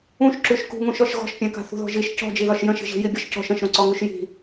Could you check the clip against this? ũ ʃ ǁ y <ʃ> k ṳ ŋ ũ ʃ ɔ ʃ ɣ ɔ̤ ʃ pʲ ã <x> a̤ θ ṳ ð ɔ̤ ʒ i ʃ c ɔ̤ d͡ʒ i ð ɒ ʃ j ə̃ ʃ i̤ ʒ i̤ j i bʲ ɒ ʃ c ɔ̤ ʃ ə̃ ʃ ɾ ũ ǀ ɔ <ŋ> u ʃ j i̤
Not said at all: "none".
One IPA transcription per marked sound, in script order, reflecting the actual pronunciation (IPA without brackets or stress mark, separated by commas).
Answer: ʃ, k, ŋ